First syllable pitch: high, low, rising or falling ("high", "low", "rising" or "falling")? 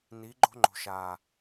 rising